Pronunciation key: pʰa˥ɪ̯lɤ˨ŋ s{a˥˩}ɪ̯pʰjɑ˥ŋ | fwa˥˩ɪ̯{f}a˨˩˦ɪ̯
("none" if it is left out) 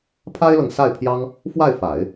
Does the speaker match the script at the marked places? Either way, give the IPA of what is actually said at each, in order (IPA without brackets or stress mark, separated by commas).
a˥˩, f